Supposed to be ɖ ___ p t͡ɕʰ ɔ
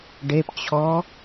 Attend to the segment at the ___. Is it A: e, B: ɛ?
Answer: A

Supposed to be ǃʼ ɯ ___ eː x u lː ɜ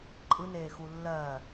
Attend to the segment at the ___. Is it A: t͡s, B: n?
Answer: B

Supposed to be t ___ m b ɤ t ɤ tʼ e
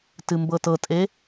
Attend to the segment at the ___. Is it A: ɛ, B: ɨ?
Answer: B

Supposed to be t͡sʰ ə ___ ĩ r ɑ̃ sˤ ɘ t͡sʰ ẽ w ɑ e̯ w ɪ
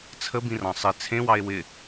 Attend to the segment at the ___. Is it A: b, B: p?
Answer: A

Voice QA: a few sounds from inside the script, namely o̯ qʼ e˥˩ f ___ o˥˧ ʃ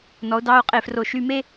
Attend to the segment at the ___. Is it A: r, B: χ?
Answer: A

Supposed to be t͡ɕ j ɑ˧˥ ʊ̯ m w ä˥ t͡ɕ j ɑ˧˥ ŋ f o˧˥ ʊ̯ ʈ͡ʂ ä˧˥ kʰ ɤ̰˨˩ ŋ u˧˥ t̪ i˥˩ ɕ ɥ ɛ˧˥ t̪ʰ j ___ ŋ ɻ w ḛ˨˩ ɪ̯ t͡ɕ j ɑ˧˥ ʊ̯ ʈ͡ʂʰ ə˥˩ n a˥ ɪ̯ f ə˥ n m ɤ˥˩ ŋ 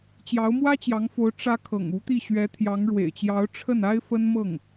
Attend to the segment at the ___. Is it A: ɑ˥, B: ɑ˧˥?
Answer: B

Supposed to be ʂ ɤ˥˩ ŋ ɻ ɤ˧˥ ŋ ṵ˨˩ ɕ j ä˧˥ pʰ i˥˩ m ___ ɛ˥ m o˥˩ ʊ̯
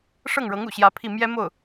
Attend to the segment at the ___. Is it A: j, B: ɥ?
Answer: A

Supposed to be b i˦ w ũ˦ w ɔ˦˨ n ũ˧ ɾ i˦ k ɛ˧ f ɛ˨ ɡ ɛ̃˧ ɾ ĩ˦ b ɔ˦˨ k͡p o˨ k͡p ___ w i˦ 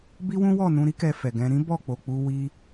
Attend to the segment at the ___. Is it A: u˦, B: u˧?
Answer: B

